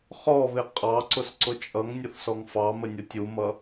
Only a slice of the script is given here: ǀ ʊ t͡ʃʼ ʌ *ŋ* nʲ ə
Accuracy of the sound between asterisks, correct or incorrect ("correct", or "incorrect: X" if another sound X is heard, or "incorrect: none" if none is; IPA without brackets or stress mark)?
correct